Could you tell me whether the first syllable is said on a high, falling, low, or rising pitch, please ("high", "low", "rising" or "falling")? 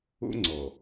high